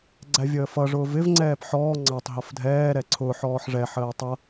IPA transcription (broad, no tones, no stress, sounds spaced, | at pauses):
ɡ͡ǀ æ vʲ əː f ʌ ʐ ʊː v ɪ v ŋ͡ǀ ɛː p ħ ɔː ŋ͡ǀ ɑ tˤ ɦ ʌ f dʱ ɛː ɾ ɛ ǀʰ ʊː ħ ɔː ħ ʐ ɛ ħ əː tˤ ʌ